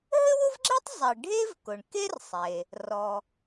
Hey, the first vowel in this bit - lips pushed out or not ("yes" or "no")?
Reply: no